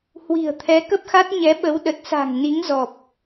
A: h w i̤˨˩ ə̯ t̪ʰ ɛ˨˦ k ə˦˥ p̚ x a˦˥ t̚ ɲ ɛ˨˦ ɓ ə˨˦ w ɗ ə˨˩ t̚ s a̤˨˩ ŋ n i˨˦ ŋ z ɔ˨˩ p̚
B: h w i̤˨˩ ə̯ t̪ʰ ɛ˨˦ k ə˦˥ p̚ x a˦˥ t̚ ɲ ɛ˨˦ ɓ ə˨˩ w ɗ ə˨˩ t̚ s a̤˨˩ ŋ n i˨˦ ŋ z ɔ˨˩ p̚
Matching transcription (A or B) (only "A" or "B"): A